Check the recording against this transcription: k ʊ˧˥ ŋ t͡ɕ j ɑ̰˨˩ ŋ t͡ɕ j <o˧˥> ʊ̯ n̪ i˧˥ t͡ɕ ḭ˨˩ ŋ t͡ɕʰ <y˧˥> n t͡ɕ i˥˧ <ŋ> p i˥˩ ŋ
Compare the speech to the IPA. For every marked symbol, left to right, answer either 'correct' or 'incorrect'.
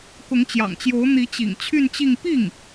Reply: correct, incorrect, correct

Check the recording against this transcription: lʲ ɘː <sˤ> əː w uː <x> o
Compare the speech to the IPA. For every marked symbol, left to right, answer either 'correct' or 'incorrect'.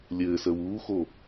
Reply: incorrect, correct

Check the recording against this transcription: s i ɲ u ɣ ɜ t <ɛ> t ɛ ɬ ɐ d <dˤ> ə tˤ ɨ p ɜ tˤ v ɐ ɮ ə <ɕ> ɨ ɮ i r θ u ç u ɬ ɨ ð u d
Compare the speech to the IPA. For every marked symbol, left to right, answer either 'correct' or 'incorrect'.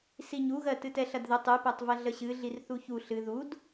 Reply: incorrect, incorrect, correct

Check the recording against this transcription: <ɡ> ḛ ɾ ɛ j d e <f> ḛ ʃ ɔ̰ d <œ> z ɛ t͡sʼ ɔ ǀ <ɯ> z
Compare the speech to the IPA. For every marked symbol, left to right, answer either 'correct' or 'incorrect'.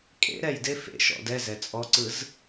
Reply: incorrect, correct, incorrect, correct

